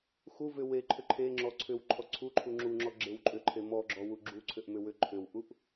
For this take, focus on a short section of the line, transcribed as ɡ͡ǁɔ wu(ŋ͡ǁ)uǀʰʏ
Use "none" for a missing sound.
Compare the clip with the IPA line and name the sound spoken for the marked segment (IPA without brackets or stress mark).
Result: ɡ͡ǁ